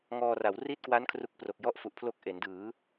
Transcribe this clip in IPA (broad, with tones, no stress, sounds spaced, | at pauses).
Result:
ŋ ɔː˧ r a˩˦ w r i˦˥ t̚ k w a˦˥ n kʰ r u˦˥ k̚ p r o˨˩ k̚ j ɔ˥˩ ʔ f u˨˩ ʔ pʰ l o˦˥ k̚ ʔ e˩˦ n d ɯː˩˦